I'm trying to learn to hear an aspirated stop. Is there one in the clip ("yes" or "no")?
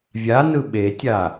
no